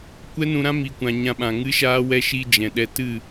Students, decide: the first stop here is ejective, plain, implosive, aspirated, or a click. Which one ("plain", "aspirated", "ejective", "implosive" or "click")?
plain